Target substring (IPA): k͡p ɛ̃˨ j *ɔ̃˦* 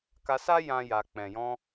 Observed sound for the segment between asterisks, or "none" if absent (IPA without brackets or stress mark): ɔ̃˧